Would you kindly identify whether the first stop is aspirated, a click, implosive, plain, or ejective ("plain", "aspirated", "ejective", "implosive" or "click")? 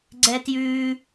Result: click